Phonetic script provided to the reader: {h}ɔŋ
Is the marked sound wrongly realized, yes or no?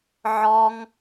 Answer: yes